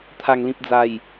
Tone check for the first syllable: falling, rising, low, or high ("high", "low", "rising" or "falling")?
low